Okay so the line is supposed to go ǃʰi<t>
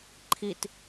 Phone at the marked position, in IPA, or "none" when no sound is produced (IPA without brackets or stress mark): t